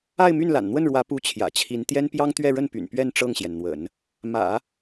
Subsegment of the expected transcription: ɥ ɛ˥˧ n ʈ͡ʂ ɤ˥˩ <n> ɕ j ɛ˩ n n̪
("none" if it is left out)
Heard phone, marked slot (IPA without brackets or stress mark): ŋ